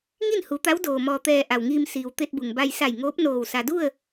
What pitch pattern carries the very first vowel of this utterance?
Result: falling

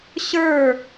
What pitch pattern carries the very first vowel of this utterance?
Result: falling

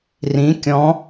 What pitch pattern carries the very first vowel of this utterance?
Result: rising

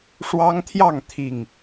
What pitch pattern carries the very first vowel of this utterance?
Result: high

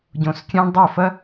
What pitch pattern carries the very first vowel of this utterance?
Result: low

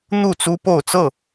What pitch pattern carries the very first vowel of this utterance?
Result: falling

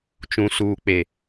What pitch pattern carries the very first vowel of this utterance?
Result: low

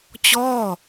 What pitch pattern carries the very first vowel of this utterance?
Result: falling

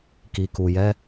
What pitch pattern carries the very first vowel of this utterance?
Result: low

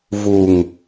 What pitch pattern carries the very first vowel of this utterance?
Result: low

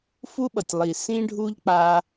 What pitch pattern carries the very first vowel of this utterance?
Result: high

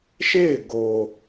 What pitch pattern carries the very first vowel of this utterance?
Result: falling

